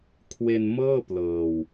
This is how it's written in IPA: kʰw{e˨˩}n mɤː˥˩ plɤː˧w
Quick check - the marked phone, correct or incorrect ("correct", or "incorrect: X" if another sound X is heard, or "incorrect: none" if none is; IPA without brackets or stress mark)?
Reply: incorrect: e˧